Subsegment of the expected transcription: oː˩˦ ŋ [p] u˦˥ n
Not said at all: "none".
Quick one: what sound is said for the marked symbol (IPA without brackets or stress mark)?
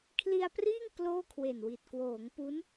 p